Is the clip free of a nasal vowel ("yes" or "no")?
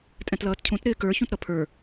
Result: no